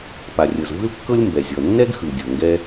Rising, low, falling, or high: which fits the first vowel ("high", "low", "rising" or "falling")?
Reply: low